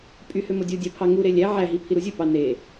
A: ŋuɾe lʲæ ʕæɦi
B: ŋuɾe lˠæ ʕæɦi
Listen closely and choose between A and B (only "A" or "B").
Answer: A